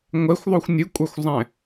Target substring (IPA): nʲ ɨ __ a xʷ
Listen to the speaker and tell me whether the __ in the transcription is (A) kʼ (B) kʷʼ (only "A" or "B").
B